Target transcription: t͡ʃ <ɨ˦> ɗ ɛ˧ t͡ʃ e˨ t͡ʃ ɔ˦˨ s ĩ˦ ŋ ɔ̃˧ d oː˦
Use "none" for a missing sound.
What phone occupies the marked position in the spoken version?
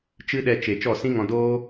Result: ɨ˦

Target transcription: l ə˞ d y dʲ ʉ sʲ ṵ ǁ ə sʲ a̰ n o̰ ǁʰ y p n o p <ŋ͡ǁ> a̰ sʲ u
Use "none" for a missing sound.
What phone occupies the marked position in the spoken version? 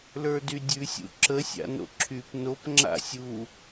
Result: ŋ͡ǁ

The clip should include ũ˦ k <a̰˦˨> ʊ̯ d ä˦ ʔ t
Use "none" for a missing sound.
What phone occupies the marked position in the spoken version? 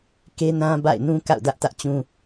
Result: a̰˦˨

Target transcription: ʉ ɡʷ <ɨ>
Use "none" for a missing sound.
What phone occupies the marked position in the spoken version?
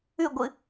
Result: ɨ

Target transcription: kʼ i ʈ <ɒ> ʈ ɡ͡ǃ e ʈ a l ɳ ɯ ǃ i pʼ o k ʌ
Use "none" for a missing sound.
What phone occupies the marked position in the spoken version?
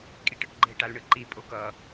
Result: ʌ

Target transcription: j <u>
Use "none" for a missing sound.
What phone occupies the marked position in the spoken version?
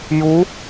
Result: u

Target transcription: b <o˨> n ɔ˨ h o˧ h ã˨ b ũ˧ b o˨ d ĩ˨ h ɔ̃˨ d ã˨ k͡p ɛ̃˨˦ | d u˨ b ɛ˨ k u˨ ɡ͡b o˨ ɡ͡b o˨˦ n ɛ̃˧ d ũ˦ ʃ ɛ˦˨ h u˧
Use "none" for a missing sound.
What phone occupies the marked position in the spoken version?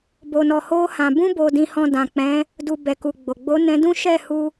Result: o˨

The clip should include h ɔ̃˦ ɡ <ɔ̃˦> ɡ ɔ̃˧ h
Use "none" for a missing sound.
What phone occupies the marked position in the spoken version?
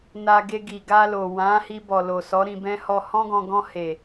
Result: ɔ̃˧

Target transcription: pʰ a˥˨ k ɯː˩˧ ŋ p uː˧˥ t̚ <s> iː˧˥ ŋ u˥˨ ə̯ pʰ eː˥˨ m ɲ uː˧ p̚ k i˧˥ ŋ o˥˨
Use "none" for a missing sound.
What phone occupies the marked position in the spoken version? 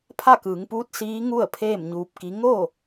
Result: s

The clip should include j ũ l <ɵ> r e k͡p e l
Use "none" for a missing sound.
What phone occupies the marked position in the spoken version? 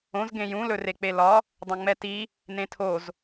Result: ɵ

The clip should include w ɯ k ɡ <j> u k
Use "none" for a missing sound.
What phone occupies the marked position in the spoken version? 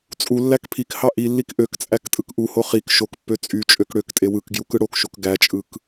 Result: j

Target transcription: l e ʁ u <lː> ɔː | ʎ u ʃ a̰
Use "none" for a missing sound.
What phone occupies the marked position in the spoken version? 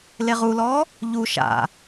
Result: l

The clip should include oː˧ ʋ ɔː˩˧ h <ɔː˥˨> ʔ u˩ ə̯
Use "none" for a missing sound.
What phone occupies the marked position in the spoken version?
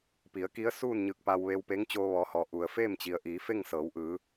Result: ɔː˩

